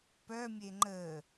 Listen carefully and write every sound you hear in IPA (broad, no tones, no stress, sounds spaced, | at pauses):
p œ mʲ e ŋ͡ǃ ə